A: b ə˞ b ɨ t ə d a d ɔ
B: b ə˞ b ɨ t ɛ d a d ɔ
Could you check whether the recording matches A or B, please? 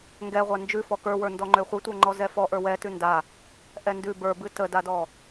A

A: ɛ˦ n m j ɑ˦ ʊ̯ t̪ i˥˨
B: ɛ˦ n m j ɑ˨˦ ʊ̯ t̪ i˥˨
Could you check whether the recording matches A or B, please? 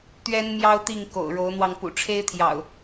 A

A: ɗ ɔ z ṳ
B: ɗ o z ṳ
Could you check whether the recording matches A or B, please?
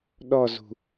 A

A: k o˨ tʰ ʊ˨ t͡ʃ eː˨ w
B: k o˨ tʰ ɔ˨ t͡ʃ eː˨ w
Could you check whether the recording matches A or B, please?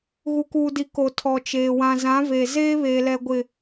B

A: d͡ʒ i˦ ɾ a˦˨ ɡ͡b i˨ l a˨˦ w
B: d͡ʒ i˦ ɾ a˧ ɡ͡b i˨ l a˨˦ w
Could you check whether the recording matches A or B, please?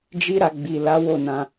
B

